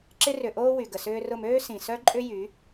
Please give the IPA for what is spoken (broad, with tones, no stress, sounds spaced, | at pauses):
ǁ ɪ˧ r ʏ˨ ʔ oː˧ w y˨ ɡ ə˨ s ʏː˧ r ʊ˦˨ m øː˦ s ĩ˨ s œ˦ ǃʼ ʏ˦ j y˨˦